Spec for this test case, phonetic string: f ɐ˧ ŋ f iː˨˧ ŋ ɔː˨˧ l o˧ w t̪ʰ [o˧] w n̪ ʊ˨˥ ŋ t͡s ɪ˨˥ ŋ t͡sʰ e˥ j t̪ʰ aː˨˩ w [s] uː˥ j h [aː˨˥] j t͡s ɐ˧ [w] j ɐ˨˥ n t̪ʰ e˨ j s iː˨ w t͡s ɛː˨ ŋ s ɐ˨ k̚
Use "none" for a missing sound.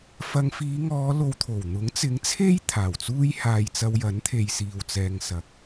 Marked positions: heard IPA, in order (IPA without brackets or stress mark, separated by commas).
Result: o˨˩, t͡s, aː˧, w